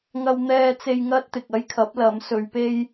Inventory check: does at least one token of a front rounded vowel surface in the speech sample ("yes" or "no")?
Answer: no